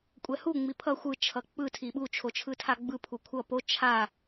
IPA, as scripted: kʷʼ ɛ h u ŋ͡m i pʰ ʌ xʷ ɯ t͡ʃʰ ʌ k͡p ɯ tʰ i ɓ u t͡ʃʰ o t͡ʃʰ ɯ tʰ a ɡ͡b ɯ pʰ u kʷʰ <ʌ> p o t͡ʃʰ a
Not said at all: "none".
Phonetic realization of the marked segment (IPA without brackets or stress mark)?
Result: ʌ